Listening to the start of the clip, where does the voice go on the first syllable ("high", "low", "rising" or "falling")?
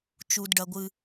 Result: low